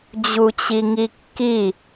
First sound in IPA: d͡ʑ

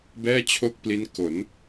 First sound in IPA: b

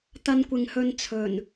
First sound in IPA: t̪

